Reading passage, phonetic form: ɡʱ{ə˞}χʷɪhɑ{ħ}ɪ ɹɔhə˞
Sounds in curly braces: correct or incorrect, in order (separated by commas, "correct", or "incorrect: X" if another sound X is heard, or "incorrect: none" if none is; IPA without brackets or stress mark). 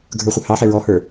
correct, correct